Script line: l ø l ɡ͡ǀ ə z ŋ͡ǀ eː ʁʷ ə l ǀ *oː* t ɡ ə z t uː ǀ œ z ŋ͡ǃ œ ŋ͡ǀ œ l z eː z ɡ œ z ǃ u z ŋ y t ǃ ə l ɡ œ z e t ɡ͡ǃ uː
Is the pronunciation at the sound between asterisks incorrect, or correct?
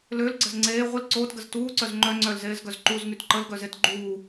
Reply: correct